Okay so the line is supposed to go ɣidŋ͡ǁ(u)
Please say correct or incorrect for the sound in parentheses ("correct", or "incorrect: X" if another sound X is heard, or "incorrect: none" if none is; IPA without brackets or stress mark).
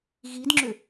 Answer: incorrect: ʏ